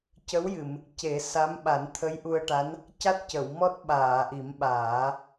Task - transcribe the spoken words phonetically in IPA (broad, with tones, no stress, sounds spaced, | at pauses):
c ə˧˥ w j ɨ˨˩˨ m | c e˨˩˦ s a˧˥ m ɓ a˨˩˦ n t̪ʰ ə˧˥ j ʔ u˧ ə̯ ʈ a˧˥ n | c a˦˥ t̚ c ə˨˩˨ w m ɔ˦˥ t̚ ɓ aː˨˩˨ ʔ i˨˩˦ m ɓ aː˨˩˦